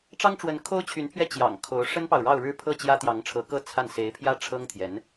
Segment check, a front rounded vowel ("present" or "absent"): present